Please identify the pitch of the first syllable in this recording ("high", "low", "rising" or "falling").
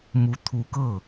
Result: rising